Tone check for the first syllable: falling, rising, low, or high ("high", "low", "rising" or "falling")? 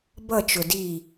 falling